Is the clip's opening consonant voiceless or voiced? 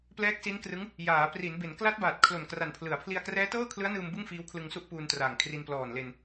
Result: voiceless